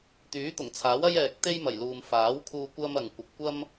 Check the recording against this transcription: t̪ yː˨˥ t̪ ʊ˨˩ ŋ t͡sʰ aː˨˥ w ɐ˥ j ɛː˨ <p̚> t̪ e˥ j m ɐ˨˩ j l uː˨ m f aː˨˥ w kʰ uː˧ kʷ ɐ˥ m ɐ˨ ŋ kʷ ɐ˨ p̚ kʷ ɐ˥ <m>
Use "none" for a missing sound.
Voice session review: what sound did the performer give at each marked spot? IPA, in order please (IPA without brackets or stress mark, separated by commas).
k̚, m